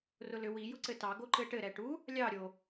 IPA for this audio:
r ʊ l ʏ w i j ʊ ǀ ɘ t ɑ ɡ o ǃ ɘ ʈ ɘ ɾ ɛ ʈ u | lʲ ɑ ɾʲ o

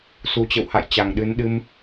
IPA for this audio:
s u˨˩ t͡ɕ ə̰˧˨ w h a̰˧˨ j t͡ɕ a˨˩ ŋ ɗ ɨ˨˦ n ɗ ɨ˧ m

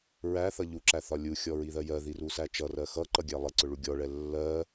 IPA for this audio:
ɹ æ θ ʌ ʎ u ǁ æ θ ɒ lʲ u xʲ ɔ ɹ i ð ɜ j ɜ ð i r u s æ t͡ʃ ʌ r ɜ x ʌ ǃ ʌ ɡʲ æ lˠ ɛ ǀ ʊ ɭ u ɡʲ ɔ ɭ ɛ lː ɜ

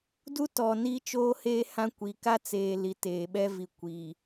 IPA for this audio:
d u˦ t ɔ˨ n i˦ t͡ʃ oː˦ h eː˦ h ã˦ kʷ i˨ k a˦ t͡s eː˨ l i˨ t eː˨ ɓ ɛ˦ v i˨ kʷ i˨

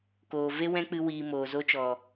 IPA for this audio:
k oː˨ v e˦ w ɛ̃˦ k͡p ɨ˧ w iː˨ m oː˨ z o˧ t͡ʃ ɔ˨

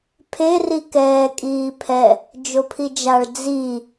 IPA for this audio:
pʰ e r i k ɛː kʼ iː pʰ ɛ | d͡ʒ o pʰ i d͡ʒ a ɭ d͡z i

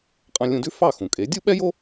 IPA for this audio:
qʼ ɑ̃˧ lʲ ũ˧ d ʉ˥ f ɑ˥˩ x ũ˩ kʼ e˩˥ dʲ u˥ ɓ ɛ˥ j o˥

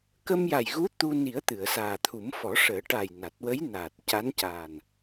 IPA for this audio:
k ə˧ m j a˨˩ j ɣ u˧˥ t̪ u˧ n i˨˩˦ ə̯ t̪ ɨ˨˩˨ ə̯ s aː˨˩ t̪ʰ u˨˩˦ m f ɔ˨˩˦ ʂ əː˨˩˦ ʈ a˨˩ j n a˨˩ t̚ w ə˧˥ j n aː˨˩ t̚ c a˧˥ n c aː˨˩ n

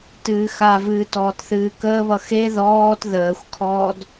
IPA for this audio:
t ɨː x a v ɨː t ɔː t θ ɨː k əː β ʌ x e ð ɔː t ð əː xʷ kʰ ɔː d

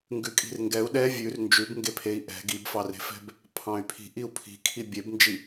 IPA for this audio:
ŋ ɡ ʉ kʼ i̤ r ŋ ɡ ɛ u̯ ɗ ɛ vʲ ʉ r n d͡ʒ ʉ b ŋ ɡ e pʰ e i̯ ʔ ɛ̤ ɡ i b f ɑ r e̤ f ɛ̤ b | pʰ ɑ̃ y̯ pʰ i̤ ʔ i u̯ pʰ i̤ kʰ i bʲ e b n d͡ʒ i

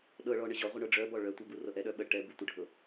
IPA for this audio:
ɗ ɤ ɭ ɔ ɳ ə ʑ ɔ ʁʷ ə ɳ ɤ ɖ͡ʐ œ b ɔ ɭ œ tʷ ɛ b u r ɤ ʔ ɛ ɗ œ ɓ ə ʈ ɛ b u tʷ ə ɖʱ ɤ

